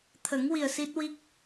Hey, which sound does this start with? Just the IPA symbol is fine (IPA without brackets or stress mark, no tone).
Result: t̪ʰ